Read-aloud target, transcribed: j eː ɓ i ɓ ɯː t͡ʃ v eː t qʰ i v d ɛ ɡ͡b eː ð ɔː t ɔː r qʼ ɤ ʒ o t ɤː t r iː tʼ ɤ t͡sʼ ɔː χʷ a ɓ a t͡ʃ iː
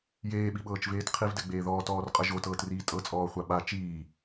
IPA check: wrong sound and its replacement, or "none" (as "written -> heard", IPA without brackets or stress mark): ɯː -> ɤː